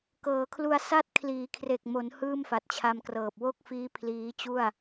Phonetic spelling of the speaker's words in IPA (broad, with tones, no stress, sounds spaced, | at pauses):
k ɤː˩˦ kʰ l u˧ a̯ s a˥˩ t̚ kʰ l iː˩˦ kʰ r e˨˩ k̚ m o˩˦ n h ɯː˥˩ m f a˨˩ t̚ t͡ɕʰ a˧ m k r ɤː˨˩ p̚ w o˥˩ k̚ f iː˦˥ pʰ l iː˦˥ t͡ɕ u˥˩ a̯